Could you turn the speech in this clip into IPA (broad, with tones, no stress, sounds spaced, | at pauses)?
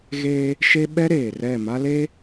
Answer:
ɣ e˦ | ʃ e˦ ɓ ɛ˦ ɾ eː˨ r ɛ˦˨ m a˦ l e˦